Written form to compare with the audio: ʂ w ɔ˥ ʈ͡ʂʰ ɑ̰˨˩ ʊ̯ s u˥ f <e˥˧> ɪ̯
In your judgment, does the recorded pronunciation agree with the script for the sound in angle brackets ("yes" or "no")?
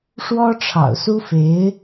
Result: no